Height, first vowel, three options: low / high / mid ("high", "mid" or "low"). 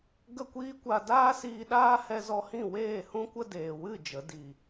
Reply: mid